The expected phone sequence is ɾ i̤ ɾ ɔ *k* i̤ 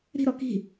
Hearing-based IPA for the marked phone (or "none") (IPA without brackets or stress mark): k